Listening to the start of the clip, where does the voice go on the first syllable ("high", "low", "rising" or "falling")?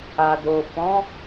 low